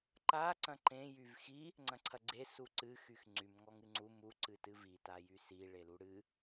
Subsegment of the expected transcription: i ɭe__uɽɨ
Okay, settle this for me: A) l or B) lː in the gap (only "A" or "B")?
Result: A